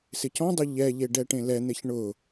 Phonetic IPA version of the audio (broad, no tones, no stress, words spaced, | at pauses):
sɪcɔ̃dˤʊ ʎɛʎe ɖɛʈẽlɛn̪eç ɳʊ